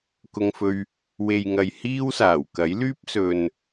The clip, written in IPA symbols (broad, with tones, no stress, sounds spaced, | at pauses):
k ʊ˧ ŋ f ɵ˧ ɥ | w e˨ j ŋ ɐ˨ j h iː˥ w s aː˨˩ w k ɐ˨˥ j l yː˥ p̚ s ɵ˨ n